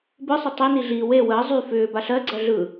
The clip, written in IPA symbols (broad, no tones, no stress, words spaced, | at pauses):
bɯsˤə tˤini ɮi we wəː zˤy fʏː baɬɜɡ͡ǀɜ ɮɯ